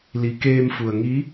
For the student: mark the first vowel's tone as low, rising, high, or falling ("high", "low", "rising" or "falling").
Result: rising